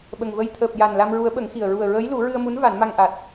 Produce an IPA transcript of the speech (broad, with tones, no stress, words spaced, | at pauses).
ɓə˨˩ŋvə˧j t̪ʰəː˨˩p̚ ja˨˩n la˧mɹu˧˥ə̯ɓə˨˩˦ŋxi˨˩ə̯ ɹu˨˩ə̯ɹəː˧˥jlu˨˩˦ ɹɨ˧ə̯mu˧˥n va˨˩˦nma˧ŋʔa˨˩t̚